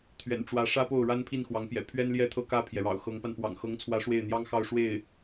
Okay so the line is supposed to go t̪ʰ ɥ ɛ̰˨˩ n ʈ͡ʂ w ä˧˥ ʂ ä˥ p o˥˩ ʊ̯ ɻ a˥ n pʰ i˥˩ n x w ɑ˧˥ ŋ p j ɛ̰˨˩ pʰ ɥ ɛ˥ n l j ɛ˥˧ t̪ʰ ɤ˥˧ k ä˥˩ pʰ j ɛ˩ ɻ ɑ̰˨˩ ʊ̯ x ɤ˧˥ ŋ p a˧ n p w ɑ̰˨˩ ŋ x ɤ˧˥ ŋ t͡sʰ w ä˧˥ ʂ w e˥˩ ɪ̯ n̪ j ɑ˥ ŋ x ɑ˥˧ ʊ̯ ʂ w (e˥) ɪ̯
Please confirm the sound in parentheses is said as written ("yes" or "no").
no